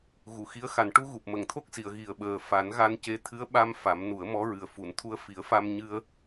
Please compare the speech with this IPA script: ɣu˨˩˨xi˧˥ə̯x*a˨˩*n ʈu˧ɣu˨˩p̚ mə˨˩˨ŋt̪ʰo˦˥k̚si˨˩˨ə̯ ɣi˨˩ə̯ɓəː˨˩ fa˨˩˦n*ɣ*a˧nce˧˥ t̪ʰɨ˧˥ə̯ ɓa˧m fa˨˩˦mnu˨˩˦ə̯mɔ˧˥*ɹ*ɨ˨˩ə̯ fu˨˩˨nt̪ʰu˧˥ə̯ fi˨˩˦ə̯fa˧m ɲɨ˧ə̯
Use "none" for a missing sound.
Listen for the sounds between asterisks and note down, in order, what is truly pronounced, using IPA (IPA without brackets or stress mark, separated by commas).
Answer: a˨˩, ɣ, ɹ